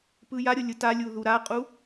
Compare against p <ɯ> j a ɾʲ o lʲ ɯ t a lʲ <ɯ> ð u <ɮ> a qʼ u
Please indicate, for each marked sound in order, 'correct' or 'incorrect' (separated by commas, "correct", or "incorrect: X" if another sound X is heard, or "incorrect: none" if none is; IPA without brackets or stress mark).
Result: correct, incorrect: u, incorrect: ɾ